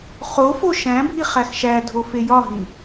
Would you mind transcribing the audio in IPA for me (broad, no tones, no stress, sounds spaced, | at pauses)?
χ o f o ʃ æ̃ bʱ i χ æ x ʃ æ dʱ o f e j ɒ ɦ ĩ